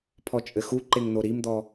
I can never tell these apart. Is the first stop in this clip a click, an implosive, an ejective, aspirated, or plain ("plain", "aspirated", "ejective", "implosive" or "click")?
aspirated